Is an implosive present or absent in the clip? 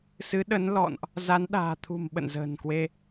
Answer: present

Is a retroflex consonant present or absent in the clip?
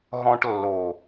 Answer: present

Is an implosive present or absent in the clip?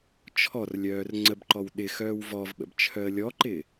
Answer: present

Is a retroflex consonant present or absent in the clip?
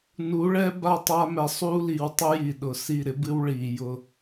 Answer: present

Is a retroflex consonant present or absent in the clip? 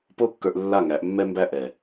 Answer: absent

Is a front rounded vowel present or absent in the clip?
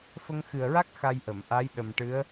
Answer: absent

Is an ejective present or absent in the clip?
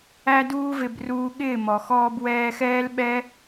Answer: absent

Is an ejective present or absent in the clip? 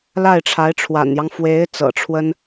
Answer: absent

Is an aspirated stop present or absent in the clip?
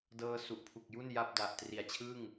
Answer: present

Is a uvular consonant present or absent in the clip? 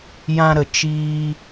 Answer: absent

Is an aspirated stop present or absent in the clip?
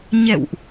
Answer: absent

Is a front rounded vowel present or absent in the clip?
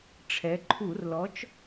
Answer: absent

